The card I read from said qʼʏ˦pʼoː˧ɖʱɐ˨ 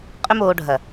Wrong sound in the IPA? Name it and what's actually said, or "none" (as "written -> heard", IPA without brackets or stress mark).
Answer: pʼ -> m